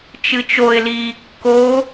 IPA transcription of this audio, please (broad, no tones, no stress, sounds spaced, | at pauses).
t͡ʃ ɨ t͡ʃ o ɪ̯ l iː kː o